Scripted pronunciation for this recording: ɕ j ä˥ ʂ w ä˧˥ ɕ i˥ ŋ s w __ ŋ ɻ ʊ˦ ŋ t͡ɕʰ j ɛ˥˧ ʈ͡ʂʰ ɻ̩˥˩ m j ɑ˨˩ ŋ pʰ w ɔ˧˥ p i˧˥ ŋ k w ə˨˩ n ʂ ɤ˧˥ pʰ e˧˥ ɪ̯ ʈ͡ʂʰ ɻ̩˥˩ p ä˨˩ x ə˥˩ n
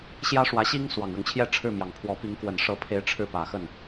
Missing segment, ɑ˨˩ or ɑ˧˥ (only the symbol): ɑ˨˩